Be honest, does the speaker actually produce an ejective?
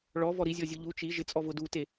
yes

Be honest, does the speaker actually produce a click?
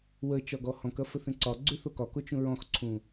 yes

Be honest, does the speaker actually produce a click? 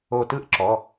yes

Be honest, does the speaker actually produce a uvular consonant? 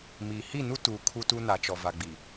no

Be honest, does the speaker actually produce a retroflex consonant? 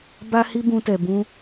no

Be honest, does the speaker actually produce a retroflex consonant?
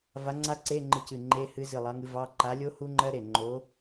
no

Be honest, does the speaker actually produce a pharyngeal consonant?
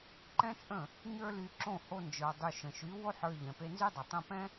yes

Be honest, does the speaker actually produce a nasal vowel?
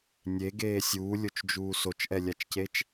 no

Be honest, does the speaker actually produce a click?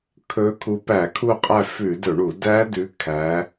no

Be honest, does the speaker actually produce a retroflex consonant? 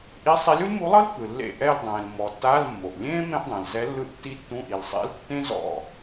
no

